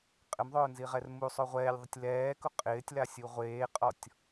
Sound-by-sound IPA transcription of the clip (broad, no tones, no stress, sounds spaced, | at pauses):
qʼ ɪ m ðˤ ʊː n z i ʁ ɛ r m u sˤ o ʁʷ ɛː lʲ ðˤ ʊ tʲ l ɛː k ʊ qʼ ɪː tʲ l a sʲ u ʁʷ eː qʼ ɔ tʲ